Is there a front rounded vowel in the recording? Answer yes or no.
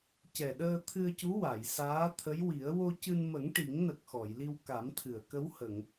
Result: no